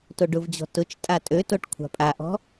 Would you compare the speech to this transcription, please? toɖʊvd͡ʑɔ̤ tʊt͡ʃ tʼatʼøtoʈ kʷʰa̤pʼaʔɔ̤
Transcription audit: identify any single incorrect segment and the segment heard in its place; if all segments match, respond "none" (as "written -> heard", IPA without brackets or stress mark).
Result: none